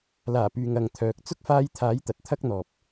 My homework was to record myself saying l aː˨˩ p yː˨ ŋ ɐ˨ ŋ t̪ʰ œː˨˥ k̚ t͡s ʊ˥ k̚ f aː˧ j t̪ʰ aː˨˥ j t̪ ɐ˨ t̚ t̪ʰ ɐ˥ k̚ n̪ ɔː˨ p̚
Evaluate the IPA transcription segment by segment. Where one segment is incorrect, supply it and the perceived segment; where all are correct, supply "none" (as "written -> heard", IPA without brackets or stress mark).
none